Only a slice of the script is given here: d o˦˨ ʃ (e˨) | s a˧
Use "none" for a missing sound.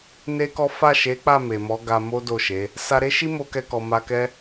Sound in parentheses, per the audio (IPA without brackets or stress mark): e˨˦